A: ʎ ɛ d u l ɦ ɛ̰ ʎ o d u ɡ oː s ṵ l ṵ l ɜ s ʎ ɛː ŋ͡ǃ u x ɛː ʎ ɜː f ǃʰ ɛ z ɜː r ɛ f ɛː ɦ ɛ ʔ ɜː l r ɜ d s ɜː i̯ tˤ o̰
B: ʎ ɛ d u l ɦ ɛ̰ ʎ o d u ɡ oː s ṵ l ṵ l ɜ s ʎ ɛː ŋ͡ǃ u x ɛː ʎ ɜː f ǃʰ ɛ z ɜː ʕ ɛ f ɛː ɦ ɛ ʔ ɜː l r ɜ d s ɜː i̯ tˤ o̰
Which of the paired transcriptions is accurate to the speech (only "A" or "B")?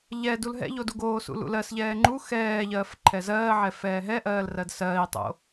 B